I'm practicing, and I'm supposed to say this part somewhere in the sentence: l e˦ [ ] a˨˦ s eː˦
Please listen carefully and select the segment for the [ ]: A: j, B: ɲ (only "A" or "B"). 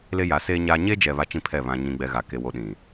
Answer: A